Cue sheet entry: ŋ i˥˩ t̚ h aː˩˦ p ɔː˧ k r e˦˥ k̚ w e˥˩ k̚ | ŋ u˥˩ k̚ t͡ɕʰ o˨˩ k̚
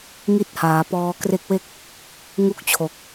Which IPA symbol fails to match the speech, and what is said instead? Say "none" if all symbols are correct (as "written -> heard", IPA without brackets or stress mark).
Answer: none